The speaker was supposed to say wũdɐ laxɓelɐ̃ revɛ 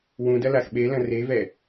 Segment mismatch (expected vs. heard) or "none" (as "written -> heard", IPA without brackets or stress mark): none